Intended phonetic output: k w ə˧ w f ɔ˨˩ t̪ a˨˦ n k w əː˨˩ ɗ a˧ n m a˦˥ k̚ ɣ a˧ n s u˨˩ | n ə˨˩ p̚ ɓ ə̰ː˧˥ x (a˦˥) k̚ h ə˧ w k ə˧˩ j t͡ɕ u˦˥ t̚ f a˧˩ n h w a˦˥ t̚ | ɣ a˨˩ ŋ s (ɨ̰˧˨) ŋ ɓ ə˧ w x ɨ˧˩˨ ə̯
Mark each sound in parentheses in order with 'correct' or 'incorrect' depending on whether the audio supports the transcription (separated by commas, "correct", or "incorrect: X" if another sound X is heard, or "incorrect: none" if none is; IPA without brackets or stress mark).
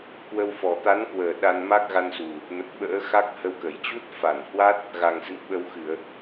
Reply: correct, correct